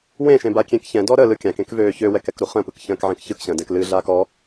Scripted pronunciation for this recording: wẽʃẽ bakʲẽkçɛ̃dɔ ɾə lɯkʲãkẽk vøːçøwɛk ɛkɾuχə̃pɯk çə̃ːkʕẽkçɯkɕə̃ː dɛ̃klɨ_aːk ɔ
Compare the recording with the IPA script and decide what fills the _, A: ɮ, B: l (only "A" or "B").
A